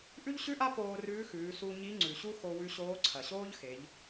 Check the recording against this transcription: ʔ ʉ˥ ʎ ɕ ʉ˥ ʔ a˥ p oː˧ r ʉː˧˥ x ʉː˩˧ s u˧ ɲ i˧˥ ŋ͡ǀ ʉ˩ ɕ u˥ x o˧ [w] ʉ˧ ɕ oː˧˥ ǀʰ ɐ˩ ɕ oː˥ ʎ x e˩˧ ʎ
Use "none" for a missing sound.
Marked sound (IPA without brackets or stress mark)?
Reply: w